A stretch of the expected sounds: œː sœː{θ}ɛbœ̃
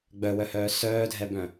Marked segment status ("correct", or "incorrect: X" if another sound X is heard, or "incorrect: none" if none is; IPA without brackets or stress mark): incorrect: dʱ